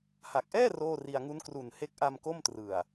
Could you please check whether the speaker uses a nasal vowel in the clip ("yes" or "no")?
no